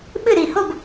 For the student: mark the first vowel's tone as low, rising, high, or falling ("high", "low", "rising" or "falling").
falling